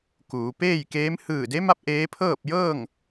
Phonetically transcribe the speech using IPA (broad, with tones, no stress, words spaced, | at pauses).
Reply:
kuː˩˧ peː˥˨jkeː˧˥m hɯː˧˩de˧˥ma˧˥p̚ ʔeː˧˥ pʰɤː˥˨p̚jɤː˥˨ŋ